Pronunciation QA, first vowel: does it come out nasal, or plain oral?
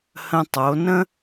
nasal